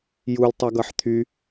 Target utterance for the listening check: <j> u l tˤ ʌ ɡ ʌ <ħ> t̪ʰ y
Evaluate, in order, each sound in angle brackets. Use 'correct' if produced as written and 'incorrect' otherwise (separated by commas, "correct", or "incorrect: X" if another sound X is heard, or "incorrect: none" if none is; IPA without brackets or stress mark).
correct, correct